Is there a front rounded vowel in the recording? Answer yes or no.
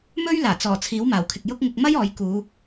no